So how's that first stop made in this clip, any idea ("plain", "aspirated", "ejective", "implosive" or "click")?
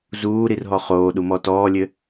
implosive